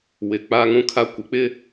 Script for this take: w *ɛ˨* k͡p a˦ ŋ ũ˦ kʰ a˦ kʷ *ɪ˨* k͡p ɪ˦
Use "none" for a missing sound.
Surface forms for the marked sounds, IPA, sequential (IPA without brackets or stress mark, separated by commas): ɪ˨, ɪ˨